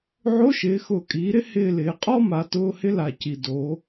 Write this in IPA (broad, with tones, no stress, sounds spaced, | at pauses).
ʕ o˧˥˧ ʃ ɪː˩˧ x ʊː˨˩ kʼ iː˩˧ ɾ ɪ˥ h ɪː˦˨ l ɪː˩˧ qʼ ɔ˥ m a˩˧ t ʊː˧˥˧ h ɪ˥ l a˨˩ c i˨˩ d o˩˧